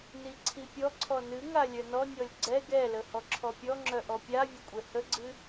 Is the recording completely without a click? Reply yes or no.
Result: no